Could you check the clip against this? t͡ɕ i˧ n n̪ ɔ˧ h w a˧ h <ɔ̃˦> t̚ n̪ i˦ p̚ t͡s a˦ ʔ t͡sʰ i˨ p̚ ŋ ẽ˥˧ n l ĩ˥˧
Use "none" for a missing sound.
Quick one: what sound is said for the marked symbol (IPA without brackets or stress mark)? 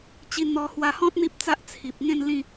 ɔ̃˦